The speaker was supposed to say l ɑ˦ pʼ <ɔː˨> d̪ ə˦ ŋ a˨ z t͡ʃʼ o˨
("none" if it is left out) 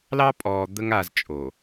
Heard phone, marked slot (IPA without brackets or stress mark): ɔː˨